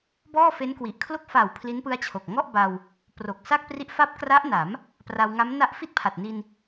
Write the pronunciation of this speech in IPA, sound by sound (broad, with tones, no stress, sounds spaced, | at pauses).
b ɔː˥˩ f e˦˥ n k w i˨˩ ʔ kʰ l o˥˩ k̚ f a˨˩ w pʰ l i˦˥ n p ɯ˦˥ a̯ t͡ɕʰ o˨˩ k̚ ŋ ɔ˥˩ ʔ b a˧ w | p r o˨˩ k̚ s a˥˩ k̚ p r i˦˥ ʔ f a˥˩ p̚ k r a˦˥ ʔ n a˩˦ m | p r a˧ w ŋ a˦˥ m n a˦˥ ʔ f i˥˩ t̚ pʰ a˨˩ t̚ n i˧ n